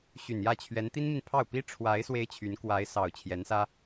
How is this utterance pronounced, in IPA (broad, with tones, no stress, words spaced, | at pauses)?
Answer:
ɕy˨˩njä˥˩t͡ɕʰɥɛ˧˥n t̪i˥nmi˨npʰɑ˥˩ʊ̯ pi˥ ʈ͡ʂʰwa˧˥ɪ̯ swe˥ɪ̯t͡ɕʰy˧˥n kwa˧˥ɪ̯sɑ˨˩ʊ̯ t͡ɕʰjɛ˧˥nsä˥